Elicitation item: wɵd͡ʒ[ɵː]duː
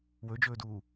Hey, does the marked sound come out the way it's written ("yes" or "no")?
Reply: yes